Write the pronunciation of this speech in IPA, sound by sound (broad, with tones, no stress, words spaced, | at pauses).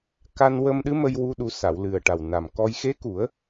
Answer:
ka˧nwə˧mɗɨ˧˥mə˧j wu˧ɗu˨˩˦ sa˨˩˨wlɨ˨˩ə̯ ʈa˨˩wna˨˩mkɔ˧j xe˧˥ku˨˩˦ə̯